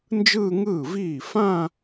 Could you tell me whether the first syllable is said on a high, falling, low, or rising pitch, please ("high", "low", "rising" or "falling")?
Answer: falling